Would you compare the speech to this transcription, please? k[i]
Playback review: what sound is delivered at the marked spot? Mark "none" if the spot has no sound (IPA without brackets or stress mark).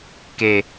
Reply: e